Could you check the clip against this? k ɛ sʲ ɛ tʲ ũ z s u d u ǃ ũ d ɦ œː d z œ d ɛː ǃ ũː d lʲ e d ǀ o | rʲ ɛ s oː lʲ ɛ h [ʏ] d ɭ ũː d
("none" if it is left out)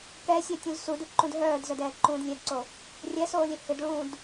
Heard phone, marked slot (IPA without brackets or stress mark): ʏ